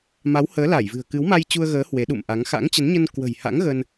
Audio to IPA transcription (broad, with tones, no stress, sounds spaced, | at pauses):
m a˨˦ w h əː˨˦ l a˧˩ j v ɨ̤˨˩ ə̯ k ɨ˨˦ w m a˧ j t͡ɕ u˧ ə̯ ɣ əː˨˦ h w e˨˦ ɗ ṵ˧˨ m ʔ a˨˦ ŋ x a̰˧˥ ŋ t͡ɕ ə˨˦ n ɲ ə˧ n k w ə̤˨˩ j h a̰˧˥ ŋ ɣ ə˧ n